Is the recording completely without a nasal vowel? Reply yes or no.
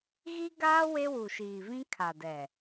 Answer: no